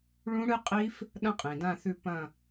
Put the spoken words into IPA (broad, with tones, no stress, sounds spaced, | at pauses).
ɭ ũ˦˥ ɽ ɨ˦˥ qʼ i˦˥ f | ɗ ɐ̃˦˥ qʼ ĩ˩ d ã˦˨ θ ʉ˦˨ p ɐ̃˦˨